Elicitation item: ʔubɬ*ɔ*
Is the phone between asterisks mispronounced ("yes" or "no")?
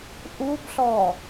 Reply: no